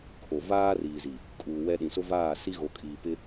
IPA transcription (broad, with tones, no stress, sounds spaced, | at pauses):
kʰ o˨ v aː˦ r iː˨ z i˨ | kʼ uː˨ w ɛ˦ ɗ ĩ˨ s ʊ˦ v aː˦˨ s i˦ ɣ o˨ kʼ iː˨ p ɪ˦